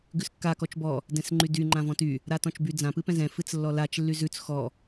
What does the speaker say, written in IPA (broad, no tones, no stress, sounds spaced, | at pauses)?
ɡ ʉ s kː a k ɔ t͡ʃ b ɔ | d ɛ̃ s ŋ͡ǃ y d y ŋ͡ǃ ã v ɔ̃ t y | ɾ a t ɔ̃ t͡ʃ b y d͡z ã p ɨ p ɛ̃ z ɛ̃ f ɨ t͡s lː ɔ l a t͡ʃ lː y z ʉ t͡s x ɔ